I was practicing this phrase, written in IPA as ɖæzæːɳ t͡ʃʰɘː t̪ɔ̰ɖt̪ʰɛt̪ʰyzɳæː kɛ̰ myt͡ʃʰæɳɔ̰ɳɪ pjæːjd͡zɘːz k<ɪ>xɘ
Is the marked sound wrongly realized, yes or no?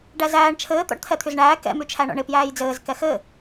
yes